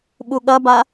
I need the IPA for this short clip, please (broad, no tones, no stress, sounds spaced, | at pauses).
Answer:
ɓ u ɠ ɐ b a